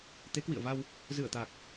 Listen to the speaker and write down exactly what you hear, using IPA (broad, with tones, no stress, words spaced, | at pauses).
t̪e˨˦kwḭ˧˨ə̯va˧w | zɨ˧˩ə̯t̪a˨˩k̚